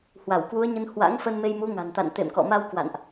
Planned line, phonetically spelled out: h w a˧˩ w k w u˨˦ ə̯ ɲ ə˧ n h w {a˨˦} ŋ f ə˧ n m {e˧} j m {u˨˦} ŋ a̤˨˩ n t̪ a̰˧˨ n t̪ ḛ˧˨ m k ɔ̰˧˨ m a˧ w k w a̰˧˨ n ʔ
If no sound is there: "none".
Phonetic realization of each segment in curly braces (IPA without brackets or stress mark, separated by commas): a̰˧˥, e˧, u˨˦